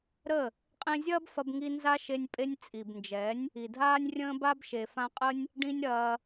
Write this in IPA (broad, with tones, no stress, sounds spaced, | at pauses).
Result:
ɾ ə˦˨ | qʼ ẽ˧ zʲ ɐː˦ b f ɐ˧ b ŋ i˧ n z a˦ ʃ e˧ nʲ pʼ e˧ nʲ t͡sʼ i˨ b n d͡ʒ ɛ˨˦ nʲ | i˨ dʱ aː˦ nʲ rʲ ə̃ː˦ b a˦ b ʃ e˨ f ã˧ qʼ ə˦ nʲ | ɖ ĩ˦ nʲ ɾ ɐː˧